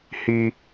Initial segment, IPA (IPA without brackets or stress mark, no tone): h